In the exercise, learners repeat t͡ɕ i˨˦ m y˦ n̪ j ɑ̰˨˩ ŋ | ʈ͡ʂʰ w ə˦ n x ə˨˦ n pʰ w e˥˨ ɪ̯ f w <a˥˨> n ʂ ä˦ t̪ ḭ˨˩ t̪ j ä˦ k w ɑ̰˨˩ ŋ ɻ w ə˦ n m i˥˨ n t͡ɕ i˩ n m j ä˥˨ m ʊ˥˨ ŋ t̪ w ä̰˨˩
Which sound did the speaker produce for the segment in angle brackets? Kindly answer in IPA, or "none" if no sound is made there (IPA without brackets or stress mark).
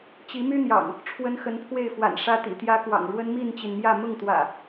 a̰˨˩